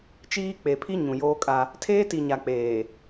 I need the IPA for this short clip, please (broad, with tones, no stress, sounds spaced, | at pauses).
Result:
t͡ʃ iː˦ k͡p e˨ pʰ i˦ ɲ ũ˨ j oː˦ kʼ a˦ | tʰ eː˦ t i˨ ɲ a˨ k͡p eː˨